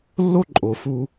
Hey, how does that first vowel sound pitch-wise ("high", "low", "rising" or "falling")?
high